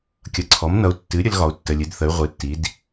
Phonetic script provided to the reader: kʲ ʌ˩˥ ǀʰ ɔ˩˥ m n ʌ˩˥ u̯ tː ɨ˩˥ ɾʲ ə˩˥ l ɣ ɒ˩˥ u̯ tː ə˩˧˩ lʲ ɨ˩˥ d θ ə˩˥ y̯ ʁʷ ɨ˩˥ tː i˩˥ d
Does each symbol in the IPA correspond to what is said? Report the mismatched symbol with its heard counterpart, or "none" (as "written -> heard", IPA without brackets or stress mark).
none